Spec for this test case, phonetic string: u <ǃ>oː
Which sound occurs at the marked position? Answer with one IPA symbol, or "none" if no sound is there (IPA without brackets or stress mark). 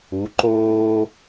ǃ